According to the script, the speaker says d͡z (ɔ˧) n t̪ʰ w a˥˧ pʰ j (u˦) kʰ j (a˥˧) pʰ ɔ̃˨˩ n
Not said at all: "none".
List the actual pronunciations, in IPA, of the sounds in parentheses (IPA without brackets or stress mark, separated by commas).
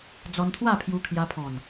ɔ˧, u˧, a˧